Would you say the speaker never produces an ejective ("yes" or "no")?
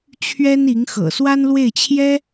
yes